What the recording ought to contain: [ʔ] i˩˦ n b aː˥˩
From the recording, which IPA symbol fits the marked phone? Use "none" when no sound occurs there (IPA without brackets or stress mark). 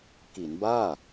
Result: k